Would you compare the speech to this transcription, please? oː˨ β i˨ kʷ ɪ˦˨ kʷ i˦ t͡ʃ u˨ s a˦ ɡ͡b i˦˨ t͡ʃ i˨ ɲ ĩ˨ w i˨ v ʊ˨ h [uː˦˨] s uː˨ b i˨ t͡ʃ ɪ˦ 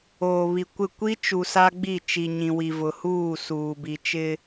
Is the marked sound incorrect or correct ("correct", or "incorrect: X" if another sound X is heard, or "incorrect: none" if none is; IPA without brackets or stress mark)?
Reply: correct